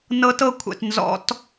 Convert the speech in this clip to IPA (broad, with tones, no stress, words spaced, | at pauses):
nɤ˦˥tɤ˥˧kʷʰɛ̰˨t nzɔ̰˧˥˧t